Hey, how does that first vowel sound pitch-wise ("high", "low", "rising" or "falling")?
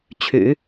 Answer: low